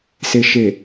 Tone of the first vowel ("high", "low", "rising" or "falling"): low